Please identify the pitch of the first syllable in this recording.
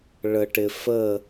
low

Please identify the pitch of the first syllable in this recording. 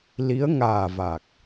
rising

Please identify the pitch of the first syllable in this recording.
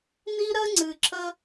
high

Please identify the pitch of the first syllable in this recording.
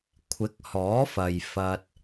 rising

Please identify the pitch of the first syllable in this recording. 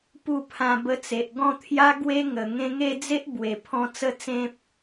falling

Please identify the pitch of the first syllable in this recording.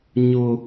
high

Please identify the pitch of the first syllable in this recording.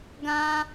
high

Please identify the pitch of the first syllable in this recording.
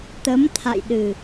rising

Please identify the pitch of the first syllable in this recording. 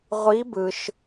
rising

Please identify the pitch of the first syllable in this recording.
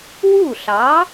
falling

